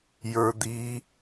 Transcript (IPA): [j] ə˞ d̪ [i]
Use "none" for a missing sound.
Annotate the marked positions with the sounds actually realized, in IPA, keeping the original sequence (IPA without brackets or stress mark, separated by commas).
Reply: j, i